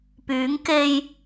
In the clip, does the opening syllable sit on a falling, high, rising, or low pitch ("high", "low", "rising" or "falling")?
rising